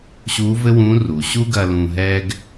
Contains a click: no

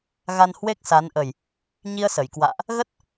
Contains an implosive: no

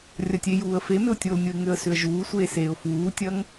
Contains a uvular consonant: no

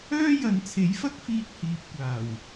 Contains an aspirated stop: yes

